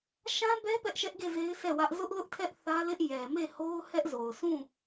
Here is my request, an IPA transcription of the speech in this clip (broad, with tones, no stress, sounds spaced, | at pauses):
ʃ ã˦ b ɛ˦ p ɛ˦ ʔ ʃ ɛ˦ ʔ ɡ e˦˨ z e˦ ɪ̯ sʰ ɛ˦˨ w ä˦ ʔ z ʊ˦ ʔ l ʊ˦ ʔ tʰ ɛ˦ ʔ θ ä˦ l ɪ˦ ʔ j ɛ˨ m e˦˨ h o˦ ʊ̯ h ɛ˦ ʔ z o˨ ʊ̯ sʰ ũ˦˨